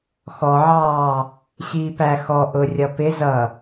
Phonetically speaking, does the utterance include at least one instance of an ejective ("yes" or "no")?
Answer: no